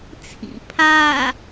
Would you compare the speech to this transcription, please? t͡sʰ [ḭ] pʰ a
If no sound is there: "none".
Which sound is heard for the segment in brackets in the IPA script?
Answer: ḭ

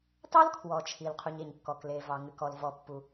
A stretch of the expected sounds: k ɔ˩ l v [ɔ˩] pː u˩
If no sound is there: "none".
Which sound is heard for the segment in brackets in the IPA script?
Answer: ɔ˩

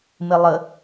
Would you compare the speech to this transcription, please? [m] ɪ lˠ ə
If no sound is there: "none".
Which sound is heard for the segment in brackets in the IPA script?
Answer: m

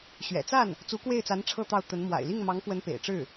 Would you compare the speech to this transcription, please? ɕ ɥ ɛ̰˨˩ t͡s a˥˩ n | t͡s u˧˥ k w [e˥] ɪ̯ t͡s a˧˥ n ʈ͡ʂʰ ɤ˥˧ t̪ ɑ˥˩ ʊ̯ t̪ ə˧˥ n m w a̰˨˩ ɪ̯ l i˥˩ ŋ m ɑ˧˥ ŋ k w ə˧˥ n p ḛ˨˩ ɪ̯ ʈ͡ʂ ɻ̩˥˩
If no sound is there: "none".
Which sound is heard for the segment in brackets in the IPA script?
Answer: e˥˩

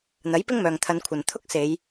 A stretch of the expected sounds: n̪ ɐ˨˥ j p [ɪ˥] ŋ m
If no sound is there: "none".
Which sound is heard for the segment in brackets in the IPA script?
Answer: ɪ˥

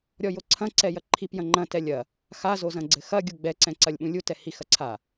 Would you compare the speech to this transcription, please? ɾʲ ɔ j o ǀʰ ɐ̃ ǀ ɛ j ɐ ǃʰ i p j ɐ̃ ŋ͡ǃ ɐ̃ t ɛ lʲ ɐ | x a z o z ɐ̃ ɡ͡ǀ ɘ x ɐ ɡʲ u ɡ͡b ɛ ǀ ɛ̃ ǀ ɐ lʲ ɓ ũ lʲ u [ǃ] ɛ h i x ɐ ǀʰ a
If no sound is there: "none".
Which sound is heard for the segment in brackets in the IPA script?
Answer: t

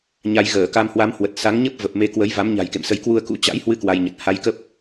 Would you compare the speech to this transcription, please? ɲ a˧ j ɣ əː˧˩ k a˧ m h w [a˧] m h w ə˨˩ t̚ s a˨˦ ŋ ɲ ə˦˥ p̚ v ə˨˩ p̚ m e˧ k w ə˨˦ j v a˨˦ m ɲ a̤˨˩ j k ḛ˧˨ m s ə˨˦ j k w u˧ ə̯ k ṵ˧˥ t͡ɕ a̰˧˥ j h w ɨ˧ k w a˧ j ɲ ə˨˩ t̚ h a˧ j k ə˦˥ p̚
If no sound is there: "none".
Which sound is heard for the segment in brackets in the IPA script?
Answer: a˨˦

